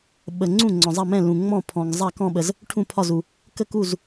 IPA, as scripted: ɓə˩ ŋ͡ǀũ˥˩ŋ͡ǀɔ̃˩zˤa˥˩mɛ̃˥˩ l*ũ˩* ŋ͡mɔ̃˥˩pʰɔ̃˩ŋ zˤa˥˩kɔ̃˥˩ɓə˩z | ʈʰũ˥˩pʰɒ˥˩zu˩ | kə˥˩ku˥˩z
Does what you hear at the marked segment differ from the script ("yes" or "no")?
no